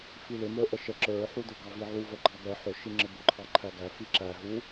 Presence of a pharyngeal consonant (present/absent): present